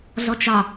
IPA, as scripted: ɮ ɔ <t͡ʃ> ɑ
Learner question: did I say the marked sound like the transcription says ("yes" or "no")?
yes